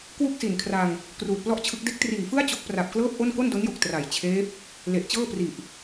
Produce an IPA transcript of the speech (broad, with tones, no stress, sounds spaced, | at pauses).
k w u˥˩ k̚ s i˨˩ n kʰ r a˧ ŋ | k r uː˨˩ t̚ p l ɔ˥˩ ʔ t͡ɕʰ ɯ˦˥ k̚ d e˦˥ k̚ t r iː˨˩ f ɯ˥˩ a̯ t͡ɕ o˦˥ k̚ p r a˨˩ p̚ k l ɤː˥˩ p̚ ʔ o˥˩ n k o˥˩ n d o˦˥ n j o˨˩ k̚ t r a˨˩ j t͡ɕʰ eː˦˥ p̚ | l e˨˩ ʔ t͡ɕ ɤː˥˩ p r i˨˩ ʔ